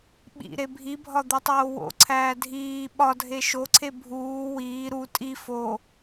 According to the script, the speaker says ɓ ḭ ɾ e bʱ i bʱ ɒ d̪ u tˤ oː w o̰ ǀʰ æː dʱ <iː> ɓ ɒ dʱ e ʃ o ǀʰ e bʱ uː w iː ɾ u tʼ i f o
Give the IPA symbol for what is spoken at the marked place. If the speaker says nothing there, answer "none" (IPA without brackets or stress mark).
iː